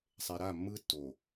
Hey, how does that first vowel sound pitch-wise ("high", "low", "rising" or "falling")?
low